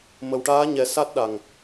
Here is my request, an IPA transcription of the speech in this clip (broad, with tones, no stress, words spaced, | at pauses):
mə˨˩wʈaː˧˥ɲɛ˨˩˦ sa˦˥t̚ɗa˨˩ŋ